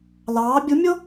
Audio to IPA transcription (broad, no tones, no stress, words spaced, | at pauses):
lɑː bʲumʲo